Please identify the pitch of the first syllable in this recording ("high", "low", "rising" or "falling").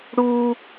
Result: high